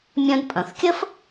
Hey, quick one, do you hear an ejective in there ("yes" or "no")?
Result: yes